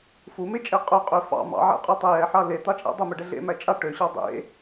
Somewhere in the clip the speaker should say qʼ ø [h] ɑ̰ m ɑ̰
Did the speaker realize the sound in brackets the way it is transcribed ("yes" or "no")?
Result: no